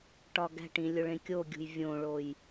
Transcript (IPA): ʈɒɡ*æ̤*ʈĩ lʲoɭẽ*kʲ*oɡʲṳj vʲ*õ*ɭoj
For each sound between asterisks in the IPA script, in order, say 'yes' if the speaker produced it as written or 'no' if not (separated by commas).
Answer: yes, yes, yes